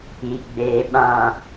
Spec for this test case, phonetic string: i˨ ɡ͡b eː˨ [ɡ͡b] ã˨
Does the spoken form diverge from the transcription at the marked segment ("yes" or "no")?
yes